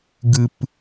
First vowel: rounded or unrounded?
unrounded